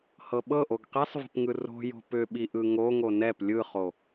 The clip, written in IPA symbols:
hɤɓɤʔoɡ qisˤvə̤pŋɯ ro̤jo̤ pʏɓi ʔɯŋo ŋonɛp lʲɯχo

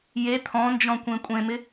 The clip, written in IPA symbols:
je t̪ʰɔ̃nd͡ʒɔ̃kʷẽ kʷʼẽmɪ

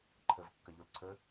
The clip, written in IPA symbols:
ǃʰəv kːɐʎolǀʰə

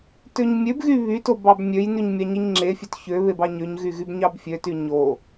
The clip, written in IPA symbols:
tøɲmʲøbɣy βyto bɑbmʲøjnyɲ mʲɑɲiɲŋ͡ǁefʲøt çøβe bɑɲøɲɣy ɣybɲɑbfʲøty ɲo

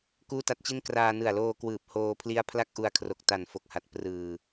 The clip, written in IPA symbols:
kuː˥˩ta˦˥t̚t͡ɕi˥˩n kraː˧ nɯ˨˩a̯loː˧ kwɯː˨˩p̚ hoː˧pʰli˦˥a̯ pʰla˥˩k̚ʔu˧a̯kʰro˨˩k̚ta˨˩n fo˨˩k̚ha˨˩t̚ prɯː˨˩

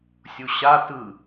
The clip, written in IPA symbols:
sʲuɕa tɯ

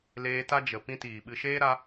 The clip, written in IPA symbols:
leː˧ta˦ d͡ʒə˨ pĩ˦tiː˨ɓɨ˧ ʃeː˦ɾa˧

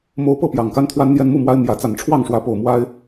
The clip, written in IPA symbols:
mo˦ʊ̯ pɤ˥˨pjɑ˨˩ŋka˦n t̪ʰwa˦nn̪jɛ˦nmu˥˨mwa˦ɪ̯ mjä˨˦ t͡sa˨˩nʈ͡ʂʰwɑ˥˨ŋʂwä˨˦ po˨˩ʊ̯ mwa˦ɪ̯

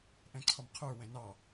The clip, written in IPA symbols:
ʔɛ̃ǀʰɔmqʰə˞ wɛ̃nɑ

